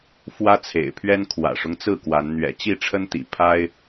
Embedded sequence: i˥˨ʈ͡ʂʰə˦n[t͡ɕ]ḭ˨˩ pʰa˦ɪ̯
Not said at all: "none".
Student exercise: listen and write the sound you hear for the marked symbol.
t̪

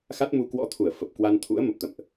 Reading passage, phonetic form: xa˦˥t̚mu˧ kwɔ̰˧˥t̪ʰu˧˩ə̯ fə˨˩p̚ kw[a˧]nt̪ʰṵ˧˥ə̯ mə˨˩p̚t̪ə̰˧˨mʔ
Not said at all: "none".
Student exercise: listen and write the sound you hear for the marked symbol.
a˧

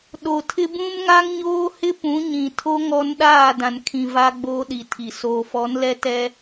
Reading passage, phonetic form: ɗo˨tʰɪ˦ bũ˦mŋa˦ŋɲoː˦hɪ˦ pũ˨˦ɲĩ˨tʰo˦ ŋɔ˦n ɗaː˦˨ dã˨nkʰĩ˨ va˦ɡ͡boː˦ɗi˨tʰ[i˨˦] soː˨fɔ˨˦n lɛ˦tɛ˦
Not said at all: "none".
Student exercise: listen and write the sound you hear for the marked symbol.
i˨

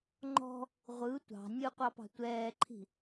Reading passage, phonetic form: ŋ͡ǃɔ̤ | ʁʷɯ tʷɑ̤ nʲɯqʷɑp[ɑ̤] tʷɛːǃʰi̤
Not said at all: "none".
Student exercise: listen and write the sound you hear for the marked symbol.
ɑ̤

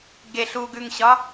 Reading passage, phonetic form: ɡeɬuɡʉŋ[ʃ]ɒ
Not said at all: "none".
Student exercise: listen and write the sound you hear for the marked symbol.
ɕ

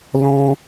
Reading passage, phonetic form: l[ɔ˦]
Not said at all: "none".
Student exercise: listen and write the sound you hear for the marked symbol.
ɔ̃˦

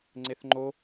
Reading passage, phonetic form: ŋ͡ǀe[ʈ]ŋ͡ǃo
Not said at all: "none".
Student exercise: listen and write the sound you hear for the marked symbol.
θ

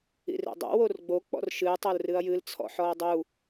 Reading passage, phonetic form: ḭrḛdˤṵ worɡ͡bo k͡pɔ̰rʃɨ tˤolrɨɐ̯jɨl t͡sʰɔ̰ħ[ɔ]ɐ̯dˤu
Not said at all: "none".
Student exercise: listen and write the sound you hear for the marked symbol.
ɔ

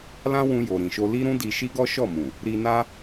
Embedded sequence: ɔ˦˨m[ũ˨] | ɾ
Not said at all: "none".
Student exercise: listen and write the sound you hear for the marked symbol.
ũ˨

